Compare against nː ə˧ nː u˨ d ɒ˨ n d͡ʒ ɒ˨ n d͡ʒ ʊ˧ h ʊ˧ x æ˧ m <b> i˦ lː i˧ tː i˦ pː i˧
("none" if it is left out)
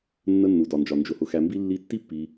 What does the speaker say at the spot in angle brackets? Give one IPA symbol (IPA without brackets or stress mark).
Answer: b